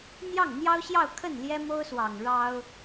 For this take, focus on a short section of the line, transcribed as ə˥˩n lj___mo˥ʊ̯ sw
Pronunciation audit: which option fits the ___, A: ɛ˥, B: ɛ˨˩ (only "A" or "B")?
A